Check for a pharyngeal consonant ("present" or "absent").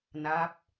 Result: absent